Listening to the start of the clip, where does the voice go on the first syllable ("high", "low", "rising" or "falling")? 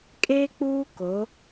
high